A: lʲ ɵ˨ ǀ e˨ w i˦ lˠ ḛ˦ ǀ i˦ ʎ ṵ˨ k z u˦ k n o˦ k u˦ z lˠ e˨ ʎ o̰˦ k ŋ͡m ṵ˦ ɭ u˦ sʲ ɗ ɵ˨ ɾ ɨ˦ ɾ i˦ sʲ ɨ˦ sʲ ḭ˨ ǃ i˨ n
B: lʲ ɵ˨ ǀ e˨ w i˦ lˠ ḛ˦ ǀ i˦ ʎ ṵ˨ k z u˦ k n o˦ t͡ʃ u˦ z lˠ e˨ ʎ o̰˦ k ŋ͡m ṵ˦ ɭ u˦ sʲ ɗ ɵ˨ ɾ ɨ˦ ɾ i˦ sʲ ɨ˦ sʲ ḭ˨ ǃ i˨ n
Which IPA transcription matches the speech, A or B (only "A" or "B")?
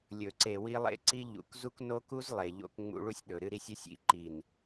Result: A